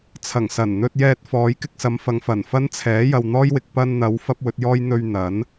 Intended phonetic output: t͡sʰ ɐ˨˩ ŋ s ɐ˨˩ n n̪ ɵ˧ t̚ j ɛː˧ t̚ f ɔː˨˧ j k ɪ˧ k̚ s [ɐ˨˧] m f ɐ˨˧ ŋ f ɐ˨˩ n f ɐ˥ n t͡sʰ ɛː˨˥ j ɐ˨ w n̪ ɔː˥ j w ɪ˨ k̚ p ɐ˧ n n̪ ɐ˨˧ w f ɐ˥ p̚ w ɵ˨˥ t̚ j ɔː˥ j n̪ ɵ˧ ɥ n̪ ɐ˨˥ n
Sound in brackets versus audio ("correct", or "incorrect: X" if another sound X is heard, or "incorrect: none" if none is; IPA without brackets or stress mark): correct